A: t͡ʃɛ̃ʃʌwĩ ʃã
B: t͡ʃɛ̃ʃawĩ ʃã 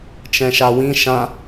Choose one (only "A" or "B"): B